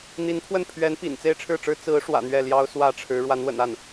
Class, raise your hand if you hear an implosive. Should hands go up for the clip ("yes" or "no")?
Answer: no